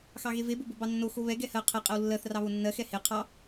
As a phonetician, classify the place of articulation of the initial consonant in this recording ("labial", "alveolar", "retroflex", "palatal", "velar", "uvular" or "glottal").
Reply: velar